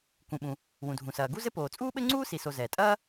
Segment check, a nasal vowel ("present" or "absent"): present